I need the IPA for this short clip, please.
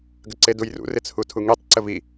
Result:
ɡ ə ǀ e d u j r ṵ r ɪ t͡sʰ u tʰ u ŋ i tˤ ǀ ə v i

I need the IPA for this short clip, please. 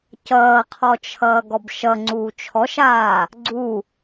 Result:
c ʌː qʰ ɔ t͡ʃʰ ʌː ɡ ɔ b ʃ ʌ ŋ͡ǀ uː t͡ʃʰ ɔ ʃ aː | ɡ͡ǀ u

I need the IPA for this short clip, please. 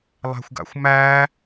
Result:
lˠ æ̤ xʷ ɡ a̰ xʷ m æ

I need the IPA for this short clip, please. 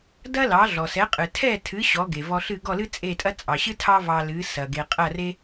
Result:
d ɐ˥ l ɑ˩˥ ɮ ɔ˩ s ɛ˩˥ qʼ ɨ˩ tʰ ɛ˥˩ tʰ ɨ˩˥ ɕ ɔ˩˥ ɡ e˩ v ɔ˧ ɬ ɨ˥˩ ɡ ɔ˥˩ l ɨ˥ t͡sʼ e˥˩ tʼ ɐ˥ t͡sʼ ɑ˩ ɕ ɨ˥ tʰ ɑ˥ v ɑ˧ l ɨ˩˥ s ɐ˩ ɡ e˩ qʼ ɐ˥˩ r e˥

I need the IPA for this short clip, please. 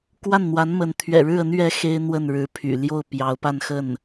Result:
k w a˥˩ n n̪ w a˧˥ n m ə˧˥ n t̪ʰ ɥ ɛ̰˨˩ ɻ ɻ̩˥˩ ə˧˥ n ɥ ɛ˧˥ x e˥ ɪ̯ n̪ w ə˥˩ n ɻ ɻ̩˧˥ pʰ y̰˨˩ l j o˥˩ ʊ̯ p j ɑ˧˥ ʊ̯ p a˥˧ n x ə˥˩ n

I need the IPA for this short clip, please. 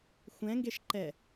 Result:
xʷ ɛ̃ ŋ ɡ e ʃ ǃ ɛ

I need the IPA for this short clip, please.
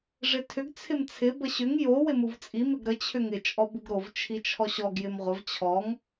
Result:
ʐ ɪ tʰ ʏ ɡ t͡sʰ ɪ m t͡sʰ ɪ b ə ɕ ʏ ŋ j o w ɪ m u v t͡sʼ i m ɪ ɡ ɾ ə t͡ɕʰ ʏ ŋ ɪ t͡ʃʼ ɔ b u ɡ ɾ o v t͡ʃʰ i t͡ʃʰ ɔ ɕ ɔ ɡ j ɪ m ʁʷ ə v t͡ɕʰ ɔ ŋ

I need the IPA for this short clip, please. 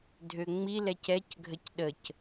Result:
dʱ ø ŋ͡m i l ɛ c ɛ c ɡʱ ə c ɗ ə c

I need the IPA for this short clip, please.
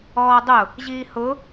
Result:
ɔː dˤ ʊ | ʑ iː h ʊ

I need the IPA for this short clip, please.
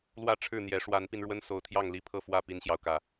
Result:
l w ä˥˨ ʈ͡ʂʰ ɻ̩˥˨ n̪ j ɛ˨˦ ʂ w a˨˦ n p i˧ n ɻ w ə˦ n s o˨˦ ʊ̯ t̪ʰ j ɑ˥˨ ŋ l i˥˨ pʰ ɤ˥˨ f w ä˥˨ p i˦ n ɕ j ɑ˨ ʊ̯ k ä˥˨

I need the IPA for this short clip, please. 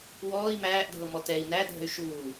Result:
w ɔː i̯ m æː ʔ dʱ ɤ m ɔ t ɛ i̯ n æ dʱ ə̤ y̯ ʃ uː

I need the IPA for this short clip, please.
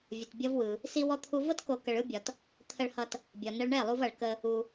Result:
vʲ ə˧ t bʲ ʌ˦ v w ɯ˧ | s i˦ w ɔ˦ t̪ʰ u˦ v ɤ˦ t k o˧ k ə˧ ɭ ɯ˦ bʲ ɒ˧ t | t̪ʰ ə˧ ɭ h ʌ˧ t | bʲ ɒ˨ n ə˧ ɭ ɳ ɛ˦˨ lˠ u˧ v ʌ˨ ɭ k ə˧ | u˧

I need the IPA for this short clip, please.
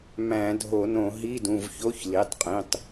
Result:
m æ̃˧˩˧ dʱ o˧˩˧ n õ˧˩˧ ɦ i˧˥˧ d ũ˩˧˩ v ç o˧˥˧ ç l i˩˧˩ tˤ qʼ ĩ˩˧˩ tˤ

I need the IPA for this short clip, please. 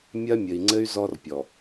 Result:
mʲ ɐ˦ mʲ ɘ˨ i̯ ŋ͡ǀ ɘ˦ y̯ z ɔ˦ r pʲ ɔ˨

